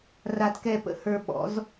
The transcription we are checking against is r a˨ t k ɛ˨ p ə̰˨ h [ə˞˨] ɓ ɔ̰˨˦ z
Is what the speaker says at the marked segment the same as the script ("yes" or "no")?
yes